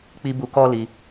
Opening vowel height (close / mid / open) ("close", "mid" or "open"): close